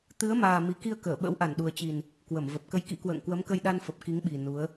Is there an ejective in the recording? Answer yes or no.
no